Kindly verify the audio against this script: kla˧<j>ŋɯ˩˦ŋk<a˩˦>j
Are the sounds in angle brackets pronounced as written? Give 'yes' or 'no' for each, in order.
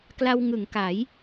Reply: no, yes

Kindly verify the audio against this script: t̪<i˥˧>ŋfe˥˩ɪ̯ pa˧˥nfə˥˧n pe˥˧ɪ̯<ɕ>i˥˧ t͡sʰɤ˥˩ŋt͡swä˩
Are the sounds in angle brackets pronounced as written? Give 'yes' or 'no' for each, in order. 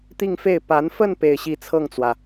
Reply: yes, yes

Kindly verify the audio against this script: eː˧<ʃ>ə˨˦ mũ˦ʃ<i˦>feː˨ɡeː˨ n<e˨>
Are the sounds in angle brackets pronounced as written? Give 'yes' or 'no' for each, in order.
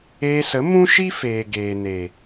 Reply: no, yes, yes

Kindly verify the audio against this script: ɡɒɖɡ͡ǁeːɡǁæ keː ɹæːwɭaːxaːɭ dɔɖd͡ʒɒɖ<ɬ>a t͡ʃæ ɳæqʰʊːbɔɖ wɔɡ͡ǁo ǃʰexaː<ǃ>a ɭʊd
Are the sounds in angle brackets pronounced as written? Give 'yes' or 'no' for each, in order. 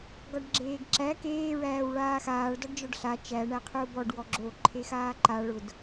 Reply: yes, yes

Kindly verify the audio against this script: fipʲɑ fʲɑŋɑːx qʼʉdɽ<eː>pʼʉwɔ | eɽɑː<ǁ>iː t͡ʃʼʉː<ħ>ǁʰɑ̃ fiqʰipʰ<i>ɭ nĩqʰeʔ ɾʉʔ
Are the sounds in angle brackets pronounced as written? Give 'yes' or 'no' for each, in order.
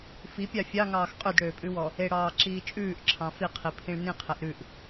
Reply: no, yes, no, no

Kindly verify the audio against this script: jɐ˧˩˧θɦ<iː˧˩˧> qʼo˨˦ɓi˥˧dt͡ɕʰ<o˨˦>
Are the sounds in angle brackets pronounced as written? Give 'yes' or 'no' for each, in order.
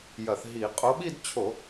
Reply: no, no

